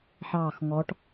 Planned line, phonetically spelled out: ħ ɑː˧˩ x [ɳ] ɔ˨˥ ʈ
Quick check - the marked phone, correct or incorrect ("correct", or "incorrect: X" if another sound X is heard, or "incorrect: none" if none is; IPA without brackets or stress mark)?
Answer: incorrect: ŋ